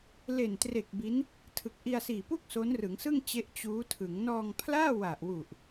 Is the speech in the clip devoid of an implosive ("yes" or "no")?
yes